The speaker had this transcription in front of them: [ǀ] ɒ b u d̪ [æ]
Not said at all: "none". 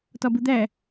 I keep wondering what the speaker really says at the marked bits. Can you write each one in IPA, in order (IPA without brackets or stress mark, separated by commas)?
t, æ